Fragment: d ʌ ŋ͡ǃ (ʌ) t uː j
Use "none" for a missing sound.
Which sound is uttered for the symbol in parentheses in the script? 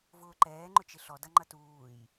ʌ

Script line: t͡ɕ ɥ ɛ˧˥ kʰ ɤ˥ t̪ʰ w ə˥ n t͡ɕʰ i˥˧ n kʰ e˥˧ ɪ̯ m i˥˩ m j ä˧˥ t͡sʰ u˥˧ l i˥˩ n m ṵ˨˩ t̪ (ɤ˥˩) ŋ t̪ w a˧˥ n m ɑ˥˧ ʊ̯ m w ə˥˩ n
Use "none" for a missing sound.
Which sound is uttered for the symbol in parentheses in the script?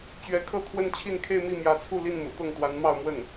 ɤ˥˩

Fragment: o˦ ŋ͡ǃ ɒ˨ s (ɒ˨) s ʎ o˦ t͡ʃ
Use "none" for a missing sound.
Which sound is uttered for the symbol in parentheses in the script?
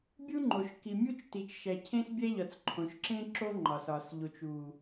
ɒ˨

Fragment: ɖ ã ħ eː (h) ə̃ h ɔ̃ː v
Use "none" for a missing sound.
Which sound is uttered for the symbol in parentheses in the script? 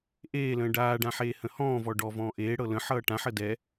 h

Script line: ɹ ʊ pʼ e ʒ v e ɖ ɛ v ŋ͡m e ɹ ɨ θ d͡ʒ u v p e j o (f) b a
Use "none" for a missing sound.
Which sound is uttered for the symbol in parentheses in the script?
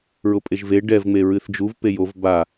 v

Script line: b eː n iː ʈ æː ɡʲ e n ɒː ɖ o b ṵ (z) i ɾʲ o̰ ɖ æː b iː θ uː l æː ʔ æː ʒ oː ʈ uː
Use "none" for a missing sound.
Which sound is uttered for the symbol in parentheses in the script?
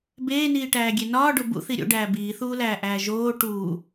θ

